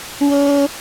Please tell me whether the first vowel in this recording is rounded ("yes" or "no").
yes